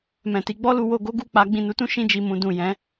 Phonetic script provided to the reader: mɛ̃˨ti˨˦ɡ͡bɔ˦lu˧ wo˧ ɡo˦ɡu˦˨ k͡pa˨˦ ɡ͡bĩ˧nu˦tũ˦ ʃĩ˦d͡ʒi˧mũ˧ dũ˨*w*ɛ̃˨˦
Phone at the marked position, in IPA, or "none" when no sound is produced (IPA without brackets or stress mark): j